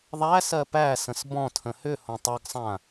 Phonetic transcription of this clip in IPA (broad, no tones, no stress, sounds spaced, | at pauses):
ðˤ æ s ɜ p æ s ə̃ s b ɔ̃ tʰ ə̃ h ʏ h õ tˤ ʌ ɡ sˤ ã